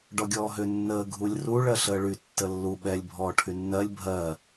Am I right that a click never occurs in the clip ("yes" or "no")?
yes